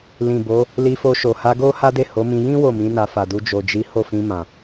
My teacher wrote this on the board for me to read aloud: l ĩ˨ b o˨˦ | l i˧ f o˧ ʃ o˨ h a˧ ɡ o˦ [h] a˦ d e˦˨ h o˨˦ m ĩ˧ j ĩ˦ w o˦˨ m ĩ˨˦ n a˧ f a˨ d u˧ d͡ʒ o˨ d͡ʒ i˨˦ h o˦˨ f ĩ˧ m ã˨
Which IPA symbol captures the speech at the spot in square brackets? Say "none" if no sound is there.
h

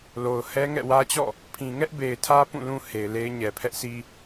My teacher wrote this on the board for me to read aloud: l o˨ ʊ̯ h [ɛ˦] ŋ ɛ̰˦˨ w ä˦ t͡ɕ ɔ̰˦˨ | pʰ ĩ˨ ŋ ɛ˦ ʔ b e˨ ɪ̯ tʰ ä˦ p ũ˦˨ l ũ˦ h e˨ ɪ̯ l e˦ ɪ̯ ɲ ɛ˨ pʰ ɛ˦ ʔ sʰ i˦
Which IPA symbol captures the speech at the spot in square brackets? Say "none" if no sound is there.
ɛ˦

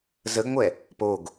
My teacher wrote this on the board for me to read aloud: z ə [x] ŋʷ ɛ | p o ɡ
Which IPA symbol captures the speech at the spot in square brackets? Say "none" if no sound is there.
ɡ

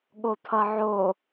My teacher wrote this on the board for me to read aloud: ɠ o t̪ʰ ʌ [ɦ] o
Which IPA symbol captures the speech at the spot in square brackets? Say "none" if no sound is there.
ʕ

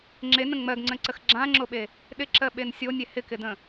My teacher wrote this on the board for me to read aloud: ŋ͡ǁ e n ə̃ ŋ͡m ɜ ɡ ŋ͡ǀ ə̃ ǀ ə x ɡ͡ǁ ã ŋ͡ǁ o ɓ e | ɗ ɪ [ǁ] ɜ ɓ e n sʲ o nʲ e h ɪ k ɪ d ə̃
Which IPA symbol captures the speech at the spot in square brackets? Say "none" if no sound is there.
ǁ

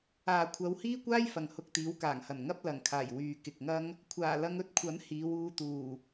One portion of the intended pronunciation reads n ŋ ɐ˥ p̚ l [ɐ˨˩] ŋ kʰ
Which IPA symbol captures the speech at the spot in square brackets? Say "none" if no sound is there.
ɐ˨˩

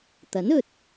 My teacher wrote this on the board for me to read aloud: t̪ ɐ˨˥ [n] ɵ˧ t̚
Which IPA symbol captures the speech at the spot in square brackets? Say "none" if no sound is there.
n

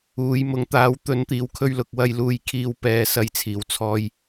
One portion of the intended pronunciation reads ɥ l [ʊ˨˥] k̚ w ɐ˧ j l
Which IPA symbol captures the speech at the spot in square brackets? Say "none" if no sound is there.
ʊ˨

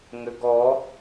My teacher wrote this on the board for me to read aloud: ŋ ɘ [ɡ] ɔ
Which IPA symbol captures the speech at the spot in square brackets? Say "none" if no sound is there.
ɡ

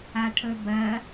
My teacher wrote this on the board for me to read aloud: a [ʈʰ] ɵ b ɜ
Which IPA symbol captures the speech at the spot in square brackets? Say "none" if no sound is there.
ʈʰ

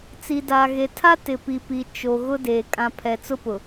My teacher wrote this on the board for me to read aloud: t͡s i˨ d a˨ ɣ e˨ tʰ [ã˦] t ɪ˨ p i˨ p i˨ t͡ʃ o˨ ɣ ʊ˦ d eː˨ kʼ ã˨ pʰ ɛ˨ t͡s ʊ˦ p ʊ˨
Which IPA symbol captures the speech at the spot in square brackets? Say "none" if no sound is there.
a˦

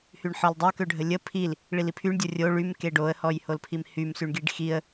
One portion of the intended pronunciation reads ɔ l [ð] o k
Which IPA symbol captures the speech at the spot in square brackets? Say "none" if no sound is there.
dˤ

